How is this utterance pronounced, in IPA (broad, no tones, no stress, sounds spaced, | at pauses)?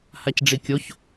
h a c ɖ͡ʐ i kʲ o ç